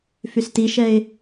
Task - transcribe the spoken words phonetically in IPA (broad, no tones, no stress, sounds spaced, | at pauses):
f y s t i ʃ ɛ ɪ̯